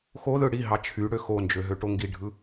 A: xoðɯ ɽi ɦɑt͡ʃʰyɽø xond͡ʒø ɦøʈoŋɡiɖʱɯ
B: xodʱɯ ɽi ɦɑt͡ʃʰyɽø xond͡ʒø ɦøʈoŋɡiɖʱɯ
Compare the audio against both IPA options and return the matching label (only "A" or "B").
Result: A